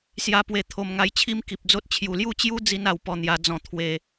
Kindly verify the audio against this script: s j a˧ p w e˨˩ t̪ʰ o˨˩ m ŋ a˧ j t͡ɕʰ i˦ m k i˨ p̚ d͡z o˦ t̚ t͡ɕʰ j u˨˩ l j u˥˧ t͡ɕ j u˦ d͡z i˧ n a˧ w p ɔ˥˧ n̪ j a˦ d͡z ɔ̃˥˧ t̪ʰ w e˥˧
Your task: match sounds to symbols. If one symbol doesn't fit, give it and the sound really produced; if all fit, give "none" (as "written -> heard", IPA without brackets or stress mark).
none